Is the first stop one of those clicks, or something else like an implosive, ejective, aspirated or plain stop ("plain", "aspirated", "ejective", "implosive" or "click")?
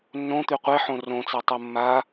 plain